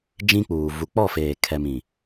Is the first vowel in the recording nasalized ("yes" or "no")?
yes